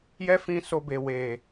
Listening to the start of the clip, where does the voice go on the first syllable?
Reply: high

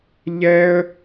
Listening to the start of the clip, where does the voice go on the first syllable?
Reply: high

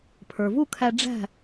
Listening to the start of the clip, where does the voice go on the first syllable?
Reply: low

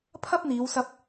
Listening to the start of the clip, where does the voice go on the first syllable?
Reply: high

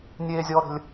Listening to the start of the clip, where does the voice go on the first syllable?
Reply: high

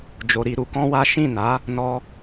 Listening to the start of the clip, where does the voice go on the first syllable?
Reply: low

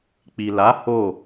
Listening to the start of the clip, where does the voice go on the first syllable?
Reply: low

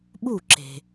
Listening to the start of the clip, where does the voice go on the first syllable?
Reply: falling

